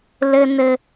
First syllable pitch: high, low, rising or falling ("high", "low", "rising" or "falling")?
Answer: high